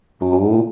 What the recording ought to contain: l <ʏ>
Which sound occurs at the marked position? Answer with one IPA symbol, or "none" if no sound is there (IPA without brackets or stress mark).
u